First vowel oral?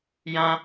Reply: no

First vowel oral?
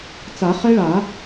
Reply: yes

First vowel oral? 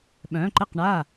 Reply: no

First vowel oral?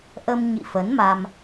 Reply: yes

